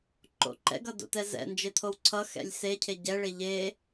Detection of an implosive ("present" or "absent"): absent